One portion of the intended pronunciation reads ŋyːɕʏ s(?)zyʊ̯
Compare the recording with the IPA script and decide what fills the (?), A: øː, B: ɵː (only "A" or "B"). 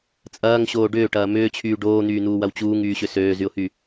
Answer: A